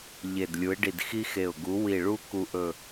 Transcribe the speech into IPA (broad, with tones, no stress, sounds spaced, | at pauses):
ʎ e˧˩ d lʲ u˨˥ ɪ̯ ɖ i˧˩ d x i˥ x e˧˩ ʊ̯ ɡ u˨˥ w i˧˩ ɭ u˥ k u˧˩ ʔ ɵ˧˩